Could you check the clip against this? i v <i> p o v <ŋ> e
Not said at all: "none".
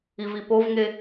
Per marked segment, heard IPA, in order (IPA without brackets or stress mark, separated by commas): i, ŋ